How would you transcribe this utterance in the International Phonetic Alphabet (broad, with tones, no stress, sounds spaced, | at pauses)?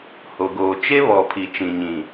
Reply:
h o˨ ɡ oː˨ t͡ʃ e˦ β ɔ˨ pʰ i˨ t͡ʃ ĩ˨ ɲ ĩ˨